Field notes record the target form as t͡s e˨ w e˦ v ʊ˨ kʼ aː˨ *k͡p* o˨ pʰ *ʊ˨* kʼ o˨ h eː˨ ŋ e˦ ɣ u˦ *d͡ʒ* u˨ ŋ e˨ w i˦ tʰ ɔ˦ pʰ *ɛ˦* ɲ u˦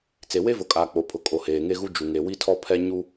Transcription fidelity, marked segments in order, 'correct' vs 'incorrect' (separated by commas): correct, correct, correct, correct